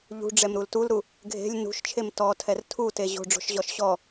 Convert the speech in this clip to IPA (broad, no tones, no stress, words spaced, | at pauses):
ʎṳɖ͡ʐɛmɾul tulɾu | ɡʱe̤lʲ nṳʃt͡ʃʰem tɔtʰɛr tʰute ʑo̤ɖ͡ʐo̤ʃʑɔʃ ɕɔ